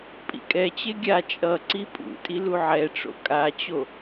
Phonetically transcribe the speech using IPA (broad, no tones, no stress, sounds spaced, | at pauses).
pʼ ḭ kʼ ɛ t͡ɕ e ɡʲ a t͡ʃʼ ʌ ǀ i pʼ ṵ tʼ i l u ʕ ɛ ʈ͡ʂ o̰ kʼ a t͡ɕ o